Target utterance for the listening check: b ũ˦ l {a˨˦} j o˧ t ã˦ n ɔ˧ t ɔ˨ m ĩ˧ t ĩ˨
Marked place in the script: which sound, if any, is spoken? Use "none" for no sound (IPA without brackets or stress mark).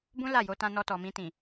a˦˨